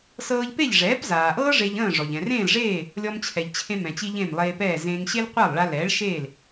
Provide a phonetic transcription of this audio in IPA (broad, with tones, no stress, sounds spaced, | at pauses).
s ɤː˧ ʎ p e˥˩ ʎ ʐ ɛː˩˥ p z aː˩ ʔ ɤː˥ ʐ e˧ ʎ ə̃ː˥˩ ʐ ɔ˩ ʎ ɛ̃˩ r ẽː˥˩ l ʐ eː˥˩ | lʲ ɔ˧ m t͡ɕʰ ɛ˩ ʎ t͡ɕʰ ẽ˧ m ɛ̃˩ t͡ɕ i˧ ʎ ẽ˥˩ m lˠ eː˧ p ɛː˥˩ z ẽː˧ ŋ ɕ e˥ l qʷ a˥˩ lˠ ɭ a˧ l ɛː˩˥ ɭ ʃ eː˥˩ l